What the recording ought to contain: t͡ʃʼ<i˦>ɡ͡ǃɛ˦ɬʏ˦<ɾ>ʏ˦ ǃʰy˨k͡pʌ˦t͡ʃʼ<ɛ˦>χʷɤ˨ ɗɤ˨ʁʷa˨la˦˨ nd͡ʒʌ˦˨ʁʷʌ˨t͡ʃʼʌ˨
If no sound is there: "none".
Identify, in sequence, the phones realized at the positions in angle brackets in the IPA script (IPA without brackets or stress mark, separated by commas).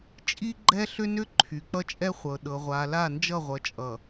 i˦, n, ɛ˦